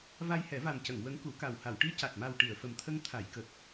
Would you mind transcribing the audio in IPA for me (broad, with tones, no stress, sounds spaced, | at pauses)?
v a˧ j h ɛ˨˩˦ v a˨˩ m c ə˨˩˨ ŋ w ə˧˥ ŋ k u˨˩˦ k a˨˩ w h a˨˩˨ w ʈ i˧˥ c a˨˩ t̚ m a˨˩ w ʈ i˨˩˨ ə̯ f ə˨˩ m t̪ʰ ə˧ ŋ t̪ʰ a˨˩˨ j k ə˨˩ k̚